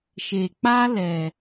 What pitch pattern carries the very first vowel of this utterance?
low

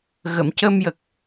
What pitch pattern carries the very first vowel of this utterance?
low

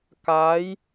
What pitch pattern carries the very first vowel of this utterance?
rising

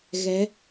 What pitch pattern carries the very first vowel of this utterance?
rising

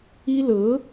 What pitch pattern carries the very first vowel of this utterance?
high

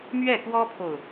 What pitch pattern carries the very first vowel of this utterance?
falling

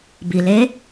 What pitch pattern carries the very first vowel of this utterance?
low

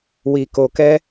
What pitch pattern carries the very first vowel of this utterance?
low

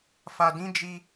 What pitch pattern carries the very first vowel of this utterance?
low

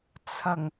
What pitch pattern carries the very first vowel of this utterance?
low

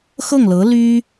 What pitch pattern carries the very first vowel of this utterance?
falling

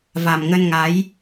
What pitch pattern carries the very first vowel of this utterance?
low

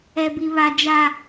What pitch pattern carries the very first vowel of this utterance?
low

